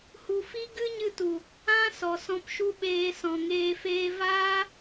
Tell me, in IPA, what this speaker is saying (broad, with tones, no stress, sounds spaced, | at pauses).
h u˨ f i˦ ɡ ɨ˦ ɲ ɨ˧ t u˨ | ã˧ s ɔ˨ s ɔ̃˧ p ʃ u˦ ɓ eː˧ s ɔ̃˨ ŋ eː˧ f eː˦ v aː˦